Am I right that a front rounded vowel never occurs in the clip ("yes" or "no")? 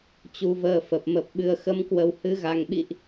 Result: yes